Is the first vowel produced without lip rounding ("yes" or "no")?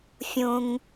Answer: no